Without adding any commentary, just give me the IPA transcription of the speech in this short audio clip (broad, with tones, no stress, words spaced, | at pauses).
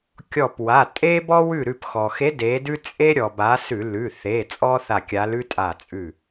kʲɔ˧˩pwa˩˧˩ tʼe˦bɔ˦ wʉ˧˩ɾʉ˧˩pxɔ˩xe˨˦ de˨˦dʉ˦ t͡sʼe˦ ɾʲɔ˩ ba˨˦ sʉ˧˩˧ lʉ˩˧˩θe˩˧˩ t͡sʼɔ˦θa˧˩kʲa˨˦lʉ˦ tʼa˧˩t͡sʼʉ˧˩